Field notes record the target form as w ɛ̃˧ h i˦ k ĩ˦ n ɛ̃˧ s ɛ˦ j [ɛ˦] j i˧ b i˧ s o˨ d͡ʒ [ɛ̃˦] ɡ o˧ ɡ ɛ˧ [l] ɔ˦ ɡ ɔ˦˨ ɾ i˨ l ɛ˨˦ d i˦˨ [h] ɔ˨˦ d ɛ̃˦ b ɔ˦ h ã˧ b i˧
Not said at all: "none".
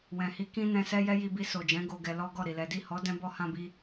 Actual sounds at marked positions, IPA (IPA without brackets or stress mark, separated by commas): ɛ˦, ɛ̃˨˦, l, h